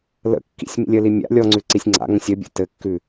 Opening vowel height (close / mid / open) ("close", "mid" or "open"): mid